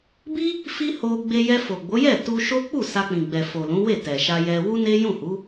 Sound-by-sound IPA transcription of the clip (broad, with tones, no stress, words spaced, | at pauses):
bi˦ | fi˦ho˧ ɡ͡be˧ jɛ˧fo˨ɡ͡bo˨˦jɛ˦˨ tu˧ʃo˦ k͡pu˦˨ sa˧k͡pĩ˨ ɡ͡bɛ˨fo˨lũ˨˦ we˦˨tɛ˨ʃa˧jɛ˧ wu˦ne˦jũ˦˨hu˨˦